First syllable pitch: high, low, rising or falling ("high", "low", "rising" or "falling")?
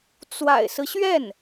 low